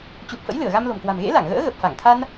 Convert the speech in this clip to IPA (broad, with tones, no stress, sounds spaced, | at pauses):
t͡ɕ u˨˩ p̚ f ə̰˧˥ j l ɨ˧˩ ə̯ ɣ a˧ m l o̤˨˩ m k w a̤˨˩ m ɣ ḛ˧˥ l a˧˩ ŋ ɣ ə̰ː˧˥ ɣ ə˨˩ p̚ f a˧˩ ŋ t̪ʰ a˧ n